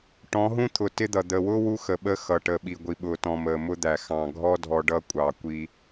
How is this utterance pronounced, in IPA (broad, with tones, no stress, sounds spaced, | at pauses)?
ʈ ɔ̃˨˦ ɦ ũ˦ t̪ʰ ʊ˨ t ɪ˦ d̪ ʌ˨ d̪ əː˨ w ʊː˦ w u˦ x ə˨ ɓ əː˦ x ʌ˨ ʈ əː˨ ɓ i˨ ɡʷ i˨ ɓ ʊː˨ t ɔ̃˨ m əː˨ m ʊ˦ d̪ æ˨ x ɑ̃˨ ɡʱ ɔ˦ dʱ ɔ˨ ɖ ʌ˦ kʷʼ ɑ˨ kʷ i˦